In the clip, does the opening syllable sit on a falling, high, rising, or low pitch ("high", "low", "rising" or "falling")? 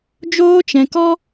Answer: high